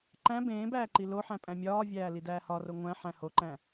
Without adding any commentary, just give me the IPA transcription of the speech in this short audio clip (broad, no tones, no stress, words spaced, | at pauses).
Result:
ǃæ̃ bẽː bæːǃiloħæ̃ pʼæ̃mʲɒːvʲæː lidæːhɒro ŋʷæ̃ħæ̃ hoǃæ̃